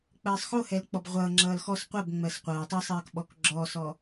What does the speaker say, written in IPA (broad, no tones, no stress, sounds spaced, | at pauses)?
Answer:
k͡p ɜː sˤ x o h ɛ l k͡p ɔ b ʁʷ ʌː ŋ͡ǁ ʌː l x ɔ s qʷ ɜ b ŋ͡m ɜ s qʷ ʌː tˤ ʌ sˤ ɜː k ɓ ɔ k ɡ͡ǁ ɔː s ɔ